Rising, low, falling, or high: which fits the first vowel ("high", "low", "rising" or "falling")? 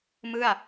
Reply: falling